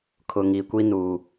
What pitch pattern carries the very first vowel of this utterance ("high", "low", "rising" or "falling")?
low